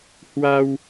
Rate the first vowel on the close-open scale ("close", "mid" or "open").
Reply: open